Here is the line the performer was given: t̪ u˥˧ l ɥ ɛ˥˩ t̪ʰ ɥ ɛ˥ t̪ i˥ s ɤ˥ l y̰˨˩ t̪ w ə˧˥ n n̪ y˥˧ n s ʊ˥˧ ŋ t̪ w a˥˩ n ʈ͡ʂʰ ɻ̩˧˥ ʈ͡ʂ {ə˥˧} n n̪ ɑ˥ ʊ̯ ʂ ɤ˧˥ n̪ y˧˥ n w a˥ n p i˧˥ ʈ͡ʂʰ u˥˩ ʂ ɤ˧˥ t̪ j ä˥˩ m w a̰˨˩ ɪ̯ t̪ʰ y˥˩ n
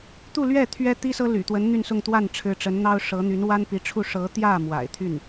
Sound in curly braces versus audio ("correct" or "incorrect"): incorrect